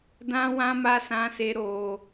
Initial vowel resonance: nasal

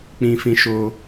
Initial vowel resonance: nasal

